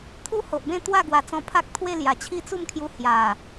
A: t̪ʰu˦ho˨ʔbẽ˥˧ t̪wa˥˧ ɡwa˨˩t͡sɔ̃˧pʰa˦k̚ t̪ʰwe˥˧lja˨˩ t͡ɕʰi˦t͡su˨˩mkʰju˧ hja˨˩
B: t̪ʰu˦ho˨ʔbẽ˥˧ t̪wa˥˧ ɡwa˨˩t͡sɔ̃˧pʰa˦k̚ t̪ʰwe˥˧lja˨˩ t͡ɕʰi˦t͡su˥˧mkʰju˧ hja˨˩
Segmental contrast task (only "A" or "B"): B